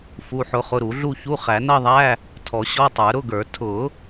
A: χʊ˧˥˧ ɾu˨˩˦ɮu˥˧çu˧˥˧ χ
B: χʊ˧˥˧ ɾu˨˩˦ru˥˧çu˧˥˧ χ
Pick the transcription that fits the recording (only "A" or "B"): A